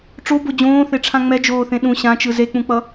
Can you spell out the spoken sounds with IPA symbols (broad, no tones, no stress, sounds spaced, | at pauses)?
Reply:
ʈ͡ʂ o b o d͡ʑ õː θ e ʈ͡ʂʰ ã ŋ͡m ɛ d͡ʒ oː θ ẽ ɗ ũ ɕ ã t͡ʃ ɯ z e k͡p ũ k͡p ʌ